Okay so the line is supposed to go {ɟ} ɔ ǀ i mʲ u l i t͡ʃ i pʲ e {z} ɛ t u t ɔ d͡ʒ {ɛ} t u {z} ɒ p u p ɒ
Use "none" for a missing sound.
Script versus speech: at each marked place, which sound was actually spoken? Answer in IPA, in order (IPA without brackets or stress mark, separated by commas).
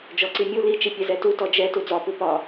d͡ʒ, z, ɛ, d͡z